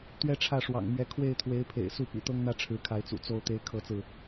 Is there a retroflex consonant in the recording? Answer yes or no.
yes